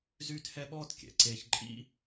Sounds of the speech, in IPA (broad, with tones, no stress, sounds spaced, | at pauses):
z yː˥ t h ɛ˥ ɓ ɔː˥ t kʲ ɛ̰˩ ǀ eː˥ ç ǃʼ ḭ˥